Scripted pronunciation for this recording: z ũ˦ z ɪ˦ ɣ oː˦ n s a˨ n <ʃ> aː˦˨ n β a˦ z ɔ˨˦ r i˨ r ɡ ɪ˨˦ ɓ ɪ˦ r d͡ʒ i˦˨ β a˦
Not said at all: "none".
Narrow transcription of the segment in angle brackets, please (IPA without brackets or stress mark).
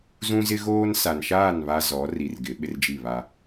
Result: ʃ